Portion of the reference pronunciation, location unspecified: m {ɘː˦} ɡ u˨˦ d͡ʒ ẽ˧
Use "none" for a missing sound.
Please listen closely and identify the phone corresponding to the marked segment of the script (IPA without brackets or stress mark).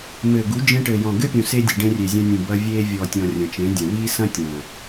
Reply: ɘː˨